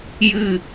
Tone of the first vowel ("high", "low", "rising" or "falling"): falling